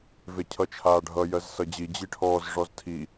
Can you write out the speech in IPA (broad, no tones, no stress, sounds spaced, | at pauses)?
v e cʰ ʌ t͡ʃʰ aː ɖʱ ʌ j ɜ z s ʌ d͡ʑ i d͡ʑ i ʈʰ ɔː z ʐ ɔ z tʰ i